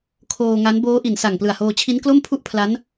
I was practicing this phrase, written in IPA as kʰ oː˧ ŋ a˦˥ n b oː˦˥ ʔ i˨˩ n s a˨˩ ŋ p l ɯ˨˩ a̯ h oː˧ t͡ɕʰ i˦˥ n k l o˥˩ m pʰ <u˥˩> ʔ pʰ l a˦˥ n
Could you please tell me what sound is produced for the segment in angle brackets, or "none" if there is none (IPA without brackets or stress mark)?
u˥˩